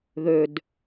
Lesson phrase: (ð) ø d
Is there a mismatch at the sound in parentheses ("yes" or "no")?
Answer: no